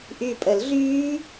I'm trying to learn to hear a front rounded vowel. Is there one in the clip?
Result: yes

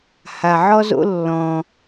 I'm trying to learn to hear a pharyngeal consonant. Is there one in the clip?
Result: yes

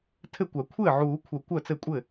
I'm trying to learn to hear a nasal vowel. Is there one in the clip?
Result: no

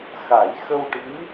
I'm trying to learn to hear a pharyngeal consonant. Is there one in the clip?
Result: no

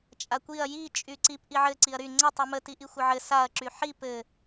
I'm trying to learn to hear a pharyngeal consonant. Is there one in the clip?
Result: yes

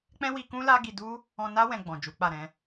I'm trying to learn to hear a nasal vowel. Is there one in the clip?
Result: yes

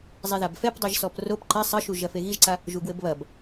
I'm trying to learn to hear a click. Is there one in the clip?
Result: yes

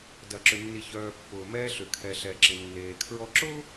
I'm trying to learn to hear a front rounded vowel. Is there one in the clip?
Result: yes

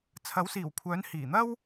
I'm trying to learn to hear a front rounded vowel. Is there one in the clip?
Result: yes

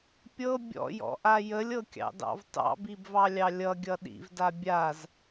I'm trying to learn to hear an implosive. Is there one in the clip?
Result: yes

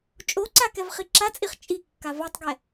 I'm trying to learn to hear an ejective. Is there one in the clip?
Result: yes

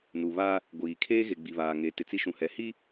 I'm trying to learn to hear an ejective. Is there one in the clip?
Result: no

